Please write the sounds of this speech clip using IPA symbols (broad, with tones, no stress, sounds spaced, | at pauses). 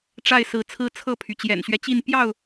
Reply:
ʈ͡ʂ a˥˨ ɪ̯ s ɹ̩˨˦ t͡sʰ ɹ̩˦ t͡sʰ ɤ˥˨ pʰ y˩ t͡ɕ j ɛ̰˨˩ n ɕ ɥ ɛ˦ t͡ɕ i˥˨ n p j ɑ˥˨ ʊ̯